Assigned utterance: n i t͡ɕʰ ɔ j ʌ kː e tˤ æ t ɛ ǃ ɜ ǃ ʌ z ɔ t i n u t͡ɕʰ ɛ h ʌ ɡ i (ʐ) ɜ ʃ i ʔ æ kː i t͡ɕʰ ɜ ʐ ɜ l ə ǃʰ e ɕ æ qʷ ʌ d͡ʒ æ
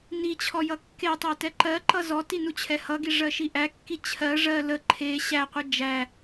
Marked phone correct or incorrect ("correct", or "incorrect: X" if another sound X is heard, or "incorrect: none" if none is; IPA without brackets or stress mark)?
correct